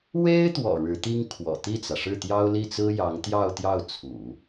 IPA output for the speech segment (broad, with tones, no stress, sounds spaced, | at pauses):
w e˥ ɪ̯ t̪ w ɔ̰˨˩ ɻ ɻ̩˧˥ t̪ i˥ ŋ kʰ w ɔ̰˨˩ t̪ i˥˩ t͡s ä˩ ʂ ɻ̩˥˩ t̪ j ɑ˥ ʊ̯ l i˥˩ t͡s ɹ̩˥ j ɑ˧˥ ŋ t̪ j ɑ˥˧ ʊ̯ t̪ j ɑ˥˩ ʊ̯ t͡sʰ ṵ˨˩˦